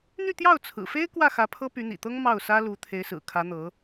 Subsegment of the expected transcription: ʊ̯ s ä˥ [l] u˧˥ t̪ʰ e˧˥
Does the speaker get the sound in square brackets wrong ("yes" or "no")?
no